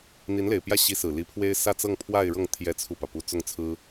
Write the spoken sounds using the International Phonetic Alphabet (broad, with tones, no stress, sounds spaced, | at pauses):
n̪ i˧˥ n l e˨˩ ɪ̯ p j ä˥˩ ɕ i˧˥ s ɹ̩˨˩ l i˧˥ pʰ w e˥ ɪ̯ s ä˥˧ t͡s ɤ˥˧ ŋ pʰ w a˥˧ ɪ̯ ɻ ɤ˥˩ ŋ t̪ʰ j ɛ˥ t͡sʰ u˥˩ p ä˩ p u˥ t͡s ʊ˥˩ ŋ t͡sʰ ɹ̩˥